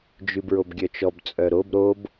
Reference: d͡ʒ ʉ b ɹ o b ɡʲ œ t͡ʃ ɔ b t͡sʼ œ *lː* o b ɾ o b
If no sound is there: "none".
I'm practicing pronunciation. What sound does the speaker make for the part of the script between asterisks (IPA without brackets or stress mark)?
ɾ